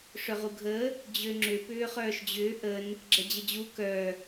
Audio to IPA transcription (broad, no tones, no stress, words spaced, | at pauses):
ʂœʁuɡʱə | d͡ʑøŋ͡ǁʏ pʏːχœːʃd͡ʑʏː ʔən | ɡ͡ǁɛd͡ʑəd͡ʑu kœ